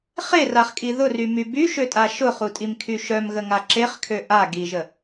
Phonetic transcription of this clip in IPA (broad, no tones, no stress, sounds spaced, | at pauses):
χ e r a χ kʼ i ð ʊ r y m y b y ʃ ø tʼ a ʃ ʊ χ u tʼ i m kʰ y ʃ œ m ɣ ə ŋ a ǁ e χ kʰ ø ʔ a ɡ i ʒ ə